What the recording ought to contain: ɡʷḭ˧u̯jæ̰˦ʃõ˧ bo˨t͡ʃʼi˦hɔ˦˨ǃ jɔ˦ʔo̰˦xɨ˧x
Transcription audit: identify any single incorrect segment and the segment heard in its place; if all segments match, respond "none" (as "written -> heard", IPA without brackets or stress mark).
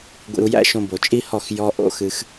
ǃ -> x